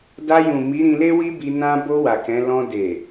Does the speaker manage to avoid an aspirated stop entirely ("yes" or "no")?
yes